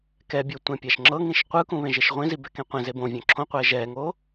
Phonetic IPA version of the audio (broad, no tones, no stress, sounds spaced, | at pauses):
k ɛ bʲ o tʷ ẽ pʲ a ʃ ŋ͡ǁ ɤ ŋ ĩ ʃ qʷ ɯ k ũ β ẽ ʒ e ʃ ʁʷ ĩ z i b ɛ k ẽ qʷ ẽ z e b õ vʲ ɔ̃ ǁʰ õ qʷ ɛː ʒ ɛː ŋ oː